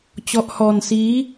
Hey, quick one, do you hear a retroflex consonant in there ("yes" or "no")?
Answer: no